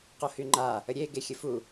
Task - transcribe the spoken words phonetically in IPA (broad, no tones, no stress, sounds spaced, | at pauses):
q o h y ŋ͡ǃ a | ə ɾʲ e ɡ e xʲ ə f u